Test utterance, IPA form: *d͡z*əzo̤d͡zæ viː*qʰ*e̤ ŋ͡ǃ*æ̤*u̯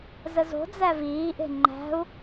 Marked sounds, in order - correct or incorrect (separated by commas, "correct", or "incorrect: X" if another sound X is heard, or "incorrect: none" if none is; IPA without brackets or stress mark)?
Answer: incorrect: z, incorrect: ʔ, correct